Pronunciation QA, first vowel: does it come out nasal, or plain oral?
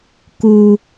oral